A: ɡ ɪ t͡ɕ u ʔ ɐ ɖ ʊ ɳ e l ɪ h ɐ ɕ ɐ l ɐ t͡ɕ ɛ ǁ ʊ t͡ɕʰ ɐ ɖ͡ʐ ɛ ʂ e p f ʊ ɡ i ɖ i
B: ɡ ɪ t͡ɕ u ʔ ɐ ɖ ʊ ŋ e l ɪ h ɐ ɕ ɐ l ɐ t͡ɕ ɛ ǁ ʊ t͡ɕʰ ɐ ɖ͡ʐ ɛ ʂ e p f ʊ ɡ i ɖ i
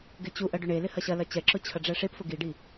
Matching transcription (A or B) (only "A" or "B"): A